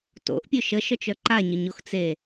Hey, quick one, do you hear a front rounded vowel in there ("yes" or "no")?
yes